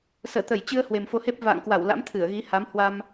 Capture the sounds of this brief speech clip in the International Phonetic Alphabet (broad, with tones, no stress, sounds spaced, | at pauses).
s əː˧˩ t̪ ə˧˩ j t͡ɕ ɨ˧ ə̯ h w e˨˩ m f o˧ h e˦˥ p̚ v a̰ː˧˨ ŋ k w a˧˩ w l a̰˧˥ m t̪ʰ ɨ˧˩ ə̯ ɣ i˨˦ h a˨˦ m h w a˧ m